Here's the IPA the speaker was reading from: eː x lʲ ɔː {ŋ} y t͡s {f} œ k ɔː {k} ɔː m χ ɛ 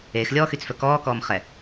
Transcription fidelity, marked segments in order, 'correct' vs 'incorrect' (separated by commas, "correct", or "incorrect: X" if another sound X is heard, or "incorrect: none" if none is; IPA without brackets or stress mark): incorrect: x, correct, correct